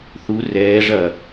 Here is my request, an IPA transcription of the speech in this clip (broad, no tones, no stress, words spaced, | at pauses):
θu rɛː ʐɐ